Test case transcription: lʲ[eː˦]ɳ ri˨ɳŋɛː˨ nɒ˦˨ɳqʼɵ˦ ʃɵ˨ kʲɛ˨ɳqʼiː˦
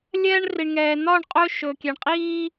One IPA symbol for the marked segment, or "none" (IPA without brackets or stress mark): ɛː˦